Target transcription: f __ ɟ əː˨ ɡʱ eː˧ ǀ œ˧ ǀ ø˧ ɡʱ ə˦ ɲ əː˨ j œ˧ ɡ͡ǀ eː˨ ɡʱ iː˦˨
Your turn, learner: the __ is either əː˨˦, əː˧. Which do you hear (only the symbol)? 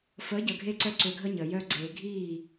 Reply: əː˨˦